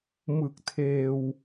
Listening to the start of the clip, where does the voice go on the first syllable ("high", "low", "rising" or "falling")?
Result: low